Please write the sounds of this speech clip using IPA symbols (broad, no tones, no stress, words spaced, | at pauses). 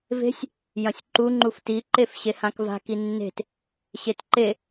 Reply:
ve̤sʲ | jɐ̃sʲǃu ŋ͡ǃufti ǃefɕehãkva̤ kinːe̤t | ɕetǃe